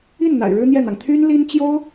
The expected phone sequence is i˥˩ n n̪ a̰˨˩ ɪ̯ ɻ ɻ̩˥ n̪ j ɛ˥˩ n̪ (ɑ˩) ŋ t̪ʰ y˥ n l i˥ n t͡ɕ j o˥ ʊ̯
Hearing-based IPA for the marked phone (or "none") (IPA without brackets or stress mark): ɑ˩